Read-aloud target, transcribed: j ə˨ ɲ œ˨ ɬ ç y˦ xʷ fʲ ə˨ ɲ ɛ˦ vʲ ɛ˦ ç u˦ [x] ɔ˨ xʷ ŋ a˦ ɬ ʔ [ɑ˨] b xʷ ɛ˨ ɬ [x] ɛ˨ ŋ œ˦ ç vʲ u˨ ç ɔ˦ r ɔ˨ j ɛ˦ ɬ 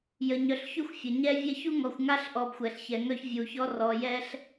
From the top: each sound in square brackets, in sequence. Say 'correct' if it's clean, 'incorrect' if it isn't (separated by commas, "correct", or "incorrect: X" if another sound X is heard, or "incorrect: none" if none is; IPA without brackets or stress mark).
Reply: incorrect: ŋ, incorrect: ɔ˨, incorrect: ç